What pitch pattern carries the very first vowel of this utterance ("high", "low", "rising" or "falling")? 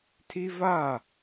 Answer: high